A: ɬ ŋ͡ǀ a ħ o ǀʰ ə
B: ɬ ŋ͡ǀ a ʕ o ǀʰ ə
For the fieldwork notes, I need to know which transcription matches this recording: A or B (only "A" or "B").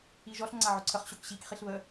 B